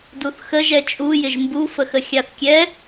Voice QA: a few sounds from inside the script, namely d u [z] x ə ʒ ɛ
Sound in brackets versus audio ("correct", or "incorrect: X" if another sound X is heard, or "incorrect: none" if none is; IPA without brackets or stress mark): incorrect: θ